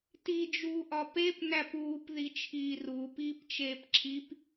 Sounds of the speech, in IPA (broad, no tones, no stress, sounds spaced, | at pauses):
t i d͡ʒ uː ʔ ɒ p e p n æ p uː p ð i t͡ʃʰ iː r uː p iː p t͡ʃ eː p ǁʰ i p